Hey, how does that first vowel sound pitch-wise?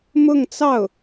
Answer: falling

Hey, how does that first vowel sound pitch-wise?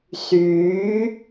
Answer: rising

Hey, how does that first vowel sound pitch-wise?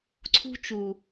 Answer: high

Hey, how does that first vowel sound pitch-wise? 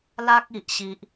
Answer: high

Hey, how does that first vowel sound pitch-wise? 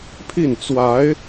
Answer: falling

